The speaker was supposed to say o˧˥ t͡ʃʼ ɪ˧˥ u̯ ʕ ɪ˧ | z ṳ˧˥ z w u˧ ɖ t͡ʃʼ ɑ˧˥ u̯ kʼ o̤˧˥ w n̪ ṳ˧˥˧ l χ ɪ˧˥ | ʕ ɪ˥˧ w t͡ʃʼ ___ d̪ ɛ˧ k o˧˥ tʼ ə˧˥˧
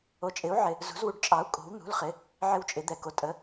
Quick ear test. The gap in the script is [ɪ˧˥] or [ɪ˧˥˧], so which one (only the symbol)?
ɪ˧˥